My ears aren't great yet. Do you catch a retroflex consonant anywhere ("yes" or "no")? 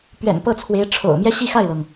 yes